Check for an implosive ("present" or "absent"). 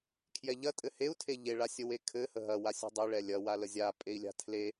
absent